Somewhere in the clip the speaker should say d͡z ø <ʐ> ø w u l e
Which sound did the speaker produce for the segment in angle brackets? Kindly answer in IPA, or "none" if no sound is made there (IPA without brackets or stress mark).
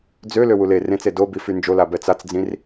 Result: l